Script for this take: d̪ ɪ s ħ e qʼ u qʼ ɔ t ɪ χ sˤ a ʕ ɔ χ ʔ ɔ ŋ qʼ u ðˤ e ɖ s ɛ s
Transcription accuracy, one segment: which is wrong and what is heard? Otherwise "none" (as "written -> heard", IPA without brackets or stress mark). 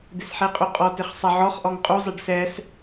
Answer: ðˤ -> zˤ